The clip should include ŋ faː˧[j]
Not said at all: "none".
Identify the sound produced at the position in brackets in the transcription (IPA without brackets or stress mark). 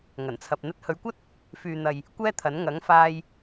j